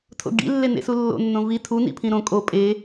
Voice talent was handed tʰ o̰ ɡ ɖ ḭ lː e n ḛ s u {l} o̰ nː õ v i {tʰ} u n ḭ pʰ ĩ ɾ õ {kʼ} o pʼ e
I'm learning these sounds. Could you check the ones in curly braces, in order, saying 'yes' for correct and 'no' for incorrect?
no, yes, yes

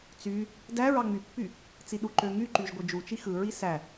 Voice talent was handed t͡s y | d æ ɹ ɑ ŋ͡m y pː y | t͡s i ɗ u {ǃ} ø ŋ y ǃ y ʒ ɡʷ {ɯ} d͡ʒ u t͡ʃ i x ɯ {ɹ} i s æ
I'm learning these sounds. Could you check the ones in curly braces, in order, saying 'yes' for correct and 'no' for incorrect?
yes, yes, yes

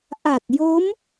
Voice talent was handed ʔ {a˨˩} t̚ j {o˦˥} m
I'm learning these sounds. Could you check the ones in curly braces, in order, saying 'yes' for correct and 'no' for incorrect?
yes, yes

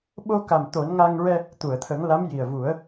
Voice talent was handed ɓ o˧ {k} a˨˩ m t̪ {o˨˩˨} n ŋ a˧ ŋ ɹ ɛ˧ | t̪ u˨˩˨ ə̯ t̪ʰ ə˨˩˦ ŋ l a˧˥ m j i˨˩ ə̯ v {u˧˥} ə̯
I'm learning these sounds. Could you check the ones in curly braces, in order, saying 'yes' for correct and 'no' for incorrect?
yes, no, no

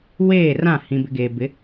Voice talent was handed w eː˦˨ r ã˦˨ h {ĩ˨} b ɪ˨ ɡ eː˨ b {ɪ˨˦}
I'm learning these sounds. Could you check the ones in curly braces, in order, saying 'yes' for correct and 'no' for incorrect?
yes, yes

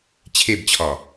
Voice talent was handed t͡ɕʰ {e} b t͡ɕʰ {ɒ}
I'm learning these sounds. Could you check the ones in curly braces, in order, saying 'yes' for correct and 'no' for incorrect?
yes, yes

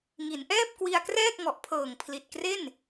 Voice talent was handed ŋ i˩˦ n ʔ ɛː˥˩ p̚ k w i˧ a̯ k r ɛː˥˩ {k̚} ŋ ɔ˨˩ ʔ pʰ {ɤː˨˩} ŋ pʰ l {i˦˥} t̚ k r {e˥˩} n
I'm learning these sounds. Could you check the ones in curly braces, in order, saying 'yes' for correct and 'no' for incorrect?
yes, yes, no, yes

